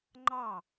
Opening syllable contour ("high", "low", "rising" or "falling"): falling